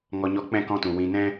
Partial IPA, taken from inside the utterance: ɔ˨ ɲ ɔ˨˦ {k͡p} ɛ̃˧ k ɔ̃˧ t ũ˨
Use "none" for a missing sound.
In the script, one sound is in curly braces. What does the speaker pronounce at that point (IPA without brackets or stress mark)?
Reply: k͡p